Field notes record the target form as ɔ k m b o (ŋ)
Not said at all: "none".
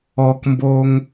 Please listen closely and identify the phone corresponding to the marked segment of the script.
ŋ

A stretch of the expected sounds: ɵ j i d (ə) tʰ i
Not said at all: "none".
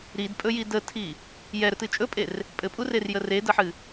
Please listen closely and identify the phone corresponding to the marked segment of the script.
ə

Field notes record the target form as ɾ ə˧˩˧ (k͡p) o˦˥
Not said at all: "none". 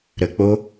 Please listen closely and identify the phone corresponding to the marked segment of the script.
k͡p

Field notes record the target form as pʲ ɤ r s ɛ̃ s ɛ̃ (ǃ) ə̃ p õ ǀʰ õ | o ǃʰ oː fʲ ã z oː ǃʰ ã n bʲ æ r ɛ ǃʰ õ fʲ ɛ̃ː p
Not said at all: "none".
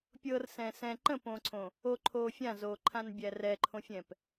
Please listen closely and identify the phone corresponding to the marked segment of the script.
ǃ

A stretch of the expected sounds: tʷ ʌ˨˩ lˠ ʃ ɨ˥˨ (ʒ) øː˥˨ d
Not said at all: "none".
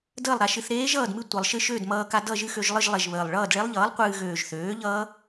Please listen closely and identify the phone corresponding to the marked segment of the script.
ʃ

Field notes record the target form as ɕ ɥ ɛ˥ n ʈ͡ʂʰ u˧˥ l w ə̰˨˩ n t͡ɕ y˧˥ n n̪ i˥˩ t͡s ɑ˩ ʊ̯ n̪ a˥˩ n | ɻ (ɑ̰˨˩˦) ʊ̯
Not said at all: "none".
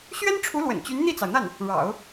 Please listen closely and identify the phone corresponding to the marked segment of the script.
ɑ̰˨˩˦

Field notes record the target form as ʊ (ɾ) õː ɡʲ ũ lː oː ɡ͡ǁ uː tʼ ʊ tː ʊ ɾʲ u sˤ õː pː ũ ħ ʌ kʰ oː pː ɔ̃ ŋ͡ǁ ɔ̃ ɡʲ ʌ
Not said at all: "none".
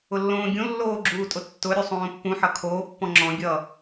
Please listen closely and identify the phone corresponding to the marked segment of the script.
lː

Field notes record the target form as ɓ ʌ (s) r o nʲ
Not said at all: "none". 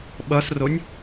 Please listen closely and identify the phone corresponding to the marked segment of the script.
s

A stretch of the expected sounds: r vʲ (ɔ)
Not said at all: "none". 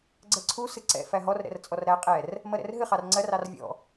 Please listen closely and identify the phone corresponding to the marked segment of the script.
ɔ̰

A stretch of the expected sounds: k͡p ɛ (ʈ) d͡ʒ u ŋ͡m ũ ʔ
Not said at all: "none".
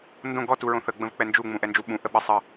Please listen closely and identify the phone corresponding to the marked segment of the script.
n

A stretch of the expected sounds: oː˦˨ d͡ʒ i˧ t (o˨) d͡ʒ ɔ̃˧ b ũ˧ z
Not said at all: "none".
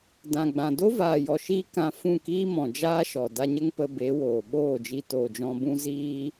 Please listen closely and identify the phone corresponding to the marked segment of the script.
oː˨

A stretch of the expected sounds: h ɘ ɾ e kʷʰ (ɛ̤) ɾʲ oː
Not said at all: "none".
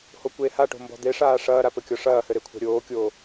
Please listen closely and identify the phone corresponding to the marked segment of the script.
ɛ̤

